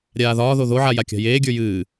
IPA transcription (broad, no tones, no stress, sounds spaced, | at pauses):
ɾʲ aː ð ɒː ð o ð o ʕ a j a kʲ a̤ j eː ɡʲ ə˞ j ɨː